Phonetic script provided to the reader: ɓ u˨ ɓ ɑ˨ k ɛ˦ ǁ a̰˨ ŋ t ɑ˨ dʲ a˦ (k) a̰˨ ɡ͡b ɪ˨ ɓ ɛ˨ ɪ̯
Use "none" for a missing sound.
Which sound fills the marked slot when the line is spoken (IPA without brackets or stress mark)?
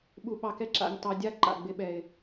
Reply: ǃ